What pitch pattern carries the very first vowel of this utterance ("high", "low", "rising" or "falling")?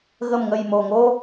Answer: low